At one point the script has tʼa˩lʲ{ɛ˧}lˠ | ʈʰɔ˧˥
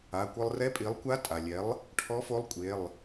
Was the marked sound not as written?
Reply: yes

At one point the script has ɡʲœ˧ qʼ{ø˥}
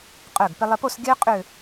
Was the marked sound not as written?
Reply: yes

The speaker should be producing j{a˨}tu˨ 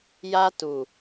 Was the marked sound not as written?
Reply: yes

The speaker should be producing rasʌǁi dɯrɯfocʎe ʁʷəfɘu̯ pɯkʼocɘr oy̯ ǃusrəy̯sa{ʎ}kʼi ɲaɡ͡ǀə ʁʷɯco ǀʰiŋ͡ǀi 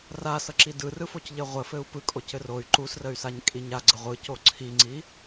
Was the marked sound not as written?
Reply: yes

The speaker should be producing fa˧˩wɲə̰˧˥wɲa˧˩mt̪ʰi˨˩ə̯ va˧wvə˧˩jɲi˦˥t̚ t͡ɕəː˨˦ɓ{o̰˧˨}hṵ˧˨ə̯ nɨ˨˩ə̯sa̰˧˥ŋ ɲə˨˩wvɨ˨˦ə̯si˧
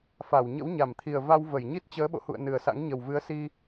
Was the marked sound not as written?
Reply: no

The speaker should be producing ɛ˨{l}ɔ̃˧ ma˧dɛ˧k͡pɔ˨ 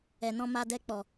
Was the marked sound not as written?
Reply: yes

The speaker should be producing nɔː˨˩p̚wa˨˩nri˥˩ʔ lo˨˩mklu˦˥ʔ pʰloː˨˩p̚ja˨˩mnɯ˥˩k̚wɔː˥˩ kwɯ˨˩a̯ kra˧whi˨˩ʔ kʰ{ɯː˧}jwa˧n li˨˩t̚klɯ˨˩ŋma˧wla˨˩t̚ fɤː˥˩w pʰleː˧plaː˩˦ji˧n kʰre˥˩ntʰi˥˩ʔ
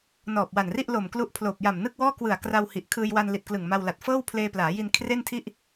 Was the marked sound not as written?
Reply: no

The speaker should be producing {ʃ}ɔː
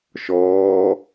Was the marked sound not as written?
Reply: no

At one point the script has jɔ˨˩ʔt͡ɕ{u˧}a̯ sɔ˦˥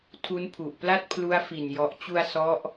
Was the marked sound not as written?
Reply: no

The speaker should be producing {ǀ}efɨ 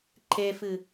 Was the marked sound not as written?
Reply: yes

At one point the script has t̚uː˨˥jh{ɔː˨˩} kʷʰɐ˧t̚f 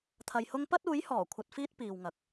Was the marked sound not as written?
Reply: no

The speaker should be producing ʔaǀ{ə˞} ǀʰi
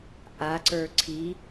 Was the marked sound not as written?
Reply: no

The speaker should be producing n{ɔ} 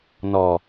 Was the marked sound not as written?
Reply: no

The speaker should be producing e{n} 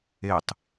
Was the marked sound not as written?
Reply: yes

